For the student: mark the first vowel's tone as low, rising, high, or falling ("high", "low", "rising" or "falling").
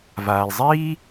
low